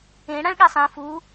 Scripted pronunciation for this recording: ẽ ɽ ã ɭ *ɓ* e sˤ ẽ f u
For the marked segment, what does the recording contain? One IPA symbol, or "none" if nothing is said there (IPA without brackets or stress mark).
ɠ